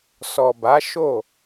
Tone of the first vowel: low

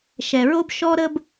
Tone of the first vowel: low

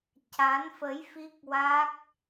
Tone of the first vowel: rising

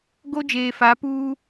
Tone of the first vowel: high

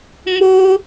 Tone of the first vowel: high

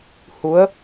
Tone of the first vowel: rising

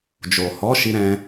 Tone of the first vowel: low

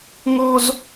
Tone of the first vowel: high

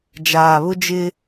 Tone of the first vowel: low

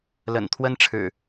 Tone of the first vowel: low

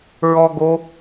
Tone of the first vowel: high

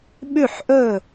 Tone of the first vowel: falling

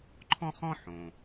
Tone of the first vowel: high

